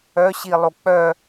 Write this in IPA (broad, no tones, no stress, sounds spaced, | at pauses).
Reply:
œ ɕ i lˠ o k͡p œ